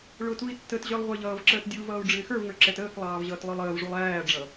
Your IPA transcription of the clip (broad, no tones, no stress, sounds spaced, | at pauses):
ɭ ʊ t u i̯ tː ə t ʑ ə˞ lˠ ʁʷ ɪː ʎ ʌː v ǁ əː t dʲ u v ʌː u̯ ɖ͡ʐ ɪː x ə˞ v ŋ ə˞ ǁ ɛ t əː k lˠ ɑː v ʑ ʌː t lˠ ə˞ lˠ əː v ʐ u lˠ æː ɖ͡ʐ ʌ